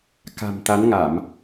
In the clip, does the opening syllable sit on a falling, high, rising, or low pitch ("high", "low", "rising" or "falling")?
low